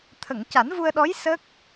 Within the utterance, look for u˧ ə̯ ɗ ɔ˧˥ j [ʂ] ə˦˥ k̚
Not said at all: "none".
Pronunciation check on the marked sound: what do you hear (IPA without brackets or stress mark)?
s